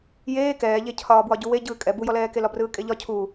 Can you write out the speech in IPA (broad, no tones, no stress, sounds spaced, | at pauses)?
j eː k ɛː ʎ e cʰ ɒː b w ɒ ɟ u w e ɟ ɯː kʼ ɛ b u j ɔ l ɛː k e l ɒ b r ɯː kʼ e ʎ ɒ cʰ u